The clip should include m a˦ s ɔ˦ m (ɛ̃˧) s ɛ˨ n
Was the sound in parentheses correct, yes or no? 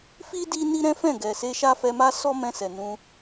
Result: yes